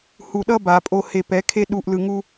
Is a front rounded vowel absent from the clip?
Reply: yes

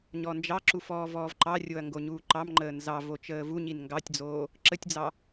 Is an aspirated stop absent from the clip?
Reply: yes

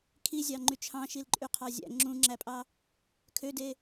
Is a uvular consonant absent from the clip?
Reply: no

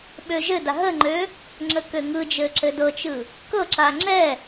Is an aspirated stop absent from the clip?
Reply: yes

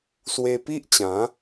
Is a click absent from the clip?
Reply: yes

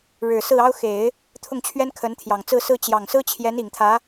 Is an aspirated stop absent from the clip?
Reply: no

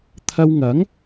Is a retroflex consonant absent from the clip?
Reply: yes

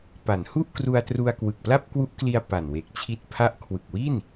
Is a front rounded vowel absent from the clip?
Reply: yes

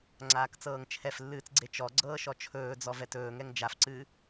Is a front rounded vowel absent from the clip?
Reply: yes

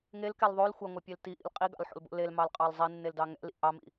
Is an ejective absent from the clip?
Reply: no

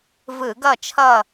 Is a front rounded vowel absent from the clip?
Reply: yes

